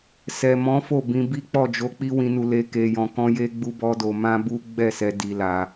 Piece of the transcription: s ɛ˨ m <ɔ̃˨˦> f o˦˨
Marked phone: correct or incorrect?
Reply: correct